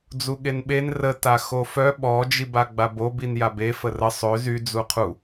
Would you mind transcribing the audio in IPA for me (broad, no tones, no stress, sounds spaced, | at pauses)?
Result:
d͡z u ɠ e n ɓ e n r ə t a x o f œ ɓ ɔ d͡ʒ i b a ɡ͡b a b o b i n j a b e f ə r ə sˤ ø z y d͡z u qʰ u